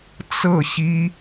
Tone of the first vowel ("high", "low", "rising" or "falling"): falling